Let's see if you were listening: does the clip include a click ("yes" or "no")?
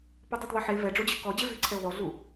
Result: yes